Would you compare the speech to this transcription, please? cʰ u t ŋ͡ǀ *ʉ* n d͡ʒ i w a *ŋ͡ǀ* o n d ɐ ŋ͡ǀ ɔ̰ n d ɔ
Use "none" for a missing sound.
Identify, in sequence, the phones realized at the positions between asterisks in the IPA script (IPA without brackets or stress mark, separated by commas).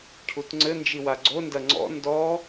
ɘ, ɡ͡ǀ